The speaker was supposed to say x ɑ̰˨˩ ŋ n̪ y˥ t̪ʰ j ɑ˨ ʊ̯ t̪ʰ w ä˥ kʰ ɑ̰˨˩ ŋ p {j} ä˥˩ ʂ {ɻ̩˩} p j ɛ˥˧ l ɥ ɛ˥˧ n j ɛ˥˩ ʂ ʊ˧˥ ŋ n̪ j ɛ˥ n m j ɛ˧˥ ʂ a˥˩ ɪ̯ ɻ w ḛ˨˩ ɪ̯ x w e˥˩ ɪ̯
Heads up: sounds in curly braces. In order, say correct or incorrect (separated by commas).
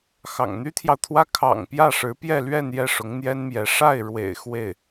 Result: correct, incorrect